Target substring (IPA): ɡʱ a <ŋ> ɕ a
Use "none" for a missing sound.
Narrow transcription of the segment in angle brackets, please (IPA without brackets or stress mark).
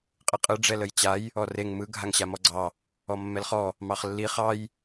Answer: ŋ